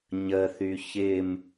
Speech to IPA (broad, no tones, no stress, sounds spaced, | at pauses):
ɲ ə θ y ç ɪ m